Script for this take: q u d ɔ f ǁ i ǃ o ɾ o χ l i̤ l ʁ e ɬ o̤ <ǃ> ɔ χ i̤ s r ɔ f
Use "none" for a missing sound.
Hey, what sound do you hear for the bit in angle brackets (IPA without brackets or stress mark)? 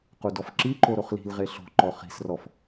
ǃ